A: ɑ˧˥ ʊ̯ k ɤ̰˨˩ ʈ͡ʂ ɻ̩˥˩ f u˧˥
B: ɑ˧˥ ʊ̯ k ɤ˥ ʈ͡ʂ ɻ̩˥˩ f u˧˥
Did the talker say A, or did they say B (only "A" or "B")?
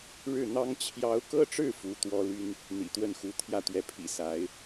B